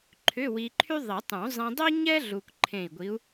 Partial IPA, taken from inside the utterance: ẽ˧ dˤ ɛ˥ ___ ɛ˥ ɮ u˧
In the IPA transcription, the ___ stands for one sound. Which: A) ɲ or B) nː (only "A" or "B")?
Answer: A